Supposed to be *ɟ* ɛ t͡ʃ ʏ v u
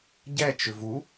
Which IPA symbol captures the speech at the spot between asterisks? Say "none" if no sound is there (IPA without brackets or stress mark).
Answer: ɟ